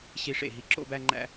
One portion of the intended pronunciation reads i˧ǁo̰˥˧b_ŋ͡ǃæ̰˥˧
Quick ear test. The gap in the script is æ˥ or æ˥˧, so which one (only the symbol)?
æ˥˧